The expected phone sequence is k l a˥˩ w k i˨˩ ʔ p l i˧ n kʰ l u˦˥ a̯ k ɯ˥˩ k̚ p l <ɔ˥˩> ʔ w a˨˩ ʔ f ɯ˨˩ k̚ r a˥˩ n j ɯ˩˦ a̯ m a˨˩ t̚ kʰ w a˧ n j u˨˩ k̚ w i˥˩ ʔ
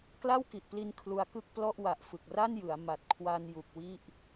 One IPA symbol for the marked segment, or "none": ɔ˥˩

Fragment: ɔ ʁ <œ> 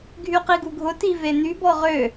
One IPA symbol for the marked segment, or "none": ø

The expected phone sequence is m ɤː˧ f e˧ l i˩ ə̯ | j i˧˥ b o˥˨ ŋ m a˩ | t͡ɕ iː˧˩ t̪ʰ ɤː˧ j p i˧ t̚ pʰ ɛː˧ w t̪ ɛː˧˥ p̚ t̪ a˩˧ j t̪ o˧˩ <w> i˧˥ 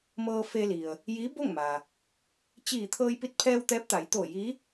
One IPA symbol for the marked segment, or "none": j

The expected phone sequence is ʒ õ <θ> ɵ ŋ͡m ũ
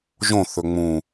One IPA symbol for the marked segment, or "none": θ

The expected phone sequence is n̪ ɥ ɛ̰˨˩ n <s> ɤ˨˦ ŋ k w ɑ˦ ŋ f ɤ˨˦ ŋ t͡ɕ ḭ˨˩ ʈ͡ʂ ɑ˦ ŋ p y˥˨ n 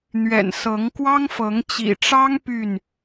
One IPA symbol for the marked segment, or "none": s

